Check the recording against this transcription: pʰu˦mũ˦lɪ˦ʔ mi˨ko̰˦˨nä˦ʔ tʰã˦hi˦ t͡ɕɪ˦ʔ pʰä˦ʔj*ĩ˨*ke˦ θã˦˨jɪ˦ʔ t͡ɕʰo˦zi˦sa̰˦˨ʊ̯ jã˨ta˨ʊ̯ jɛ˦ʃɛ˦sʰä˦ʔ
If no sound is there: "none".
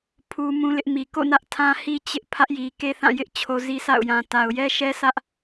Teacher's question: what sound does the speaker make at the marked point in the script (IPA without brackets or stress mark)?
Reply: i˨